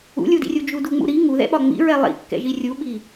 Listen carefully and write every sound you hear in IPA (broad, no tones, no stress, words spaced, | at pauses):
ṵlʲudḭrʲu d͡ʒuduŋ͡mṵɾi ŋuðɛ̰ɓɒ ŋ͡mḭɹɛ lˠḭkːɛ̰ʒi rʲuɓi